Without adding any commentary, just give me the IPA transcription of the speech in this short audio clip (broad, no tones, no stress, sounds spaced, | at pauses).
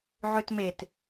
ʕ ø t m e t